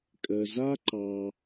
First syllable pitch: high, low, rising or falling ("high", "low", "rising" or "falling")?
low